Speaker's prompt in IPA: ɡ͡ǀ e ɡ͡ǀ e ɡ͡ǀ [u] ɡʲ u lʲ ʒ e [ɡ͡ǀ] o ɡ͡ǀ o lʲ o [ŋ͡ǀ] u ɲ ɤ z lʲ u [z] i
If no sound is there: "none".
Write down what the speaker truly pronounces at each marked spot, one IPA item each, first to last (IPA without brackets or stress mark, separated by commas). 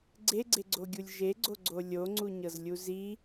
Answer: o, ɡ͡ǀ, ŋ͡ǀ, z